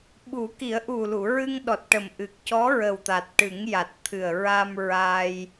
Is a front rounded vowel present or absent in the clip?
absent